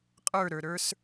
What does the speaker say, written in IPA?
qʼə˞ɾə˞ɾə˞s

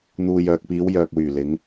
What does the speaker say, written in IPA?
n̪uː˨j œː˨k̚piː˨˧w jœː˨k̚wyː˨˩ lɪ˨˧ŋ

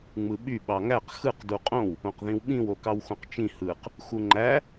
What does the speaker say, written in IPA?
ŋ͡mɯɓy ɓɑŋæq xɯq duqʼõw | õqðĩwɓĩw okɑwxõqt͡ʃĩ hɯq | xuŋ͡ǃæ

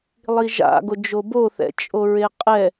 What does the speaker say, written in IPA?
lˠiʒa̰ɡo d͡ʒoboθɛ̰ t͡ʃʼoɹeqʼɛ

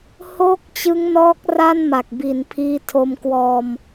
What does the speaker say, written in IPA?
hoː˥˩k̚t͡ɕɯ˦˥ŋnɔː˦˥k̚ ra˥˩nma˨˩k̚bi˩˦n pʰiː˦˥tʰo˧mkwɔː˧m

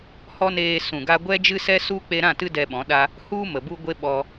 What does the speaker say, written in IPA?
hɔ˦neː˧ sũ˨ɡa˧ɡʷɛ˦d͡ʒɨ˦ sɛ˦su˦ k͡pe˧ɾã˦˨ tɨ˧ dɛ˧ɓɔ̃˨˦ɗa˦ | hu˧ mə˨bu˦ ɡʷe˦ɓɔ˧

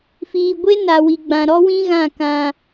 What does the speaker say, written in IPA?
fiː˨ɡʷe˦na˨wi˨ ɡ͡bã˨ɾɔ˦wĩ˦ɣã˦˨ kã˦

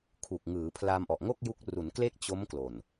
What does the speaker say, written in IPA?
kʰu˨˩k̚ŋɯː˩˦pʰla˧m ʔɔ˨˩ʔŋo˥˩k̚ ju˦˥k̚ ru˩˦nkle˥˩k̚ t͡ɕo˦˥mklo˨˩n

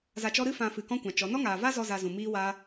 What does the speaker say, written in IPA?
za˧t͡ʃɔ˦ ɾɨ˦fã˧fɨ˨ kɔ̃˦kʷã˨t͡ʃɔ˨˦ nɔ˦ŋaː˨va˦zɔ˧ za˧zũ˨ miː˦wa˦

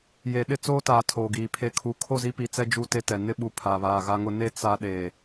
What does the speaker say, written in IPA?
je˨ ɗɪ˦t͡soː˦taː˨ tʰoː˨ɡiː˨ pʰe˨ kʰu˨ kʰo˦˨zi˦pi˨t͡sɛ˦ d͡ʒu˦˨te˦tɛ˨ nɪ˦ɓu˨ pʰa˨βaː˨ɣa˦ŋʊ˦ ne˦ t͡sa˦ɗe˨

